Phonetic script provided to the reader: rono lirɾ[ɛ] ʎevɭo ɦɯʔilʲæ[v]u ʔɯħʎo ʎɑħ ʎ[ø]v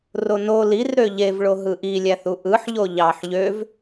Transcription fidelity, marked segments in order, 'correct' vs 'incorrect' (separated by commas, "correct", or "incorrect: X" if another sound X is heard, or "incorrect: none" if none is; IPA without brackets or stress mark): incorrect: ø, incorrect: θ, correct